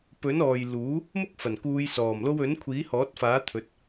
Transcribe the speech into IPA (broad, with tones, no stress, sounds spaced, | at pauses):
p ɵ˨˥ n ɔː˨ j l uː˨˥ | m ʊ˥ k̚ f ɐ˨˩ n k uː˨˧ j s ɔː˨˩ m l o˧ w ɵ˨˥ n kʷʰ iː˨˥ h ɔː˨˥ t̚ f aː˨˥ t̪ʰ ɵ˨˥ t̚